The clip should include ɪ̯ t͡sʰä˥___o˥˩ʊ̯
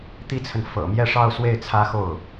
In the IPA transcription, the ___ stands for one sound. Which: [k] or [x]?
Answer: x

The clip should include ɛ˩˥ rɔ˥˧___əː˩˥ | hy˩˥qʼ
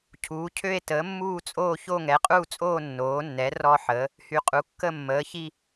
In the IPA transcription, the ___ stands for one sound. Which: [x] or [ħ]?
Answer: ħ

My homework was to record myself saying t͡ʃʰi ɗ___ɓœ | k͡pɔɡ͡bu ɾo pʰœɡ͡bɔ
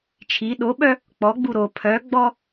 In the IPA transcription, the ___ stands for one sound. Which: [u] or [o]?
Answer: o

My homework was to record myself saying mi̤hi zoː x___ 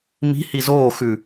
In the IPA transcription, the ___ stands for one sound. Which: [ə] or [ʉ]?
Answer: ʉ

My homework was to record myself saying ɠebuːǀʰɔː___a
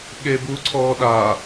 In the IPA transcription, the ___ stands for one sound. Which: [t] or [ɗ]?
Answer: ɗ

